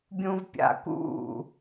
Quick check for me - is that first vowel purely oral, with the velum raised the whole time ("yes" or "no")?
no